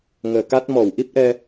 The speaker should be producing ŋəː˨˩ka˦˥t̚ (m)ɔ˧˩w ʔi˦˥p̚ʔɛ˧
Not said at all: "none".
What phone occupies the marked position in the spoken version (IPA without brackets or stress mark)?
m